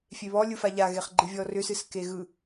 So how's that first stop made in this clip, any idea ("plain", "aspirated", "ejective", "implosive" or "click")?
click